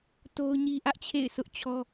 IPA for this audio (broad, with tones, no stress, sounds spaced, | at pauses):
t o˦ ʊ̯ ɲ i˦ ʔ ä˦ ʔ t͡ɕʰ ḛ˦˨ ɪ̯ s ʊ˦ ʔ t͡ɕʰ ɔ˦